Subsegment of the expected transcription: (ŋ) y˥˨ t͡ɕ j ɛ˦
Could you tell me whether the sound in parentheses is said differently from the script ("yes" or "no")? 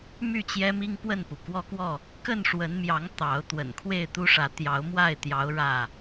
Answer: yes